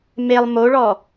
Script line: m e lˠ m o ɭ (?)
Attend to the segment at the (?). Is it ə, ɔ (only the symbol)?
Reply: ɔ